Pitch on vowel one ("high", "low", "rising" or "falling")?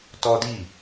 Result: high